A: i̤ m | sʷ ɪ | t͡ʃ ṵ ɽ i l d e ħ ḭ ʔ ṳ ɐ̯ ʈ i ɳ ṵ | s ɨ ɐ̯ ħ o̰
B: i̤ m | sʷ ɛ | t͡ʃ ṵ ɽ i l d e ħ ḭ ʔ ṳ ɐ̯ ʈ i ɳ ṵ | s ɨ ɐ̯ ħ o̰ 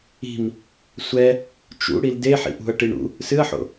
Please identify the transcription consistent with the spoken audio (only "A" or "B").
B